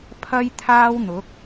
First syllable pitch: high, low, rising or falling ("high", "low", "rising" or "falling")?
high